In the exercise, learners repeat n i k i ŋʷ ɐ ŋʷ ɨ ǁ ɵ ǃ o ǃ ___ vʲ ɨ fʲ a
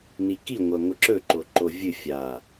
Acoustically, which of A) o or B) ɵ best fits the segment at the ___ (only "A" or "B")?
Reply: A